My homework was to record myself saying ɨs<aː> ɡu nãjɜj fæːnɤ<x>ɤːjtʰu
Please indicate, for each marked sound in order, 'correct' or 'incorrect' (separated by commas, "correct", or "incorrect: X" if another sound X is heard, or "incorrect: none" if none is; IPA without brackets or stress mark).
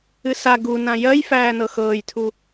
incorrect: a, correct